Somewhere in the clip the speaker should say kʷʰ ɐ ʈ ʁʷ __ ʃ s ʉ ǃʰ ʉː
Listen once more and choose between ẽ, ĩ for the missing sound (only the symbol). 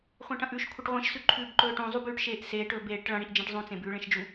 ĩ